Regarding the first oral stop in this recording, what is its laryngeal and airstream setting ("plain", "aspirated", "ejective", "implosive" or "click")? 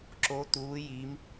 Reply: click